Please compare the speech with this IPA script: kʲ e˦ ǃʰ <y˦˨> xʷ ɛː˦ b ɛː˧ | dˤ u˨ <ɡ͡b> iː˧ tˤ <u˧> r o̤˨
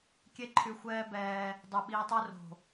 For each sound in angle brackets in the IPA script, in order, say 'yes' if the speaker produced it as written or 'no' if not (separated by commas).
no, no, no